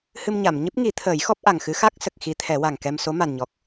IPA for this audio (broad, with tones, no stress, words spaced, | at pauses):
hɨ˧m ɲa˨˩˨mɲɨ˦˥p̚ŋi˨˩˦t̪ʰəː˨˩˦j xɔ˦˥p̚ʔa˨˩ŋxɨ˧˥ xa˦˥k̚sə˨˩k̚ xi˧˥t̪ʰɛ˨˩˦wa˨˩ŋkɛ˧m so˧˥ma˨˩nɲɔ˨˩k̚